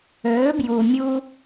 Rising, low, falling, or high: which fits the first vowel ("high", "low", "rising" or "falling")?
rising